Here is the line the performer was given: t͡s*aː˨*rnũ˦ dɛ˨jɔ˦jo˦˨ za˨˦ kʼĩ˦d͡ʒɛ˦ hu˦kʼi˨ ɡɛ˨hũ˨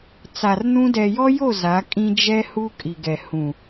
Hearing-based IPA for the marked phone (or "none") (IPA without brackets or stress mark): a˨